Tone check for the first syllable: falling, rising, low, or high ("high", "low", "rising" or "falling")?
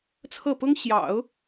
falling